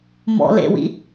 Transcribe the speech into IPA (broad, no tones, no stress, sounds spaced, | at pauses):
m ɔ̰ l ḛ w ḭ